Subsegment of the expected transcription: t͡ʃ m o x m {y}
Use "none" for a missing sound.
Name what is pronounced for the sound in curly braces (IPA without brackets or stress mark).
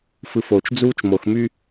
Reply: y